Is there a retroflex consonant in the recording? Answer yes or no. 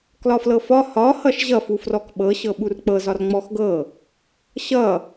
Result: no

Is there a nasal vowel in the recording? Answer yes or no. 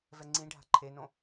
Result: yes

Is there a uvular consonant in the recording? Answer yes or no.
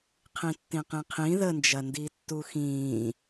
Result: yes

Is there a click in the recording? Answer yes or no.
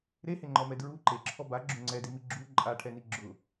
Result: yes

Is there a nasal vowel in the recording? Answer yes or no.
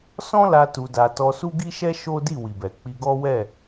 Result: yes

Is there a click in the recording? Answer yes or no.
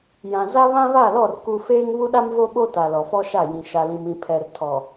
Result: no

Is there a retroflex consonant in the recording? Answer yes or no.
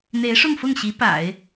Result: yes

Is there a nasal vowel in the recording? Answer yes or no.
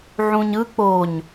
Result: yes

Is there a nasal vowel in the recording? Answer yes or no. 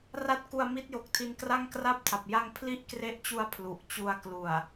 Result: no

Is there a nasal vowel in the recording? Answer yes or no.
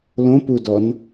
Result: yes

